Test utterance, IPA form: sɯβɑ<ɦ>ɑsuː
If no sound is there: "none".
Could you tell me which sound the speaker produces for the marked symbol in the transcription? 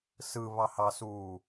h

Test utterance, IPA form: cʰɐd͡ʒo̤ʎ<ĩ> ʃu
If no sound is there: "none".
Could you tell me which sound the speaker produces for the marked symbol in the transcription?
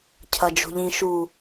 ĩ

